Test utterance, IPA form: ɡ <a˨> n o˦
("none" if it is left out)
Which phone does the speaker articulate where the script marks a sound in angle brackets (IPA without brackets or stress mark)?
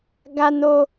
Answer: a˦